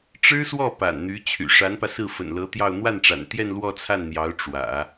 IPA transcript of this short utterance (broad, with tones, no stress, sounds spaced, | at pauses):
ʈ͡ʂ ɻ̩˥ s w ɔ˥˩ p a̰˨˩ n n̪ y˧˥ t͡ɕʰ y̰˨˩ ʂ a˧˥ n p ä˧ s ɹ̩˥˩ f ə̰˨˩ n l ɤ˧˥ t̪ j ɑ˥˧ ʊ̯ n̪ w a˥˩ n ʈ͡ʂ a̰˨˩ n t̪ j ɛ˥˧ n l w ɔ˥˧ t͡sʰ a˥˩ n n̪ j ɑ˧˥ ʊ̯ ʈ͡ʂ w ä̰˨˩˦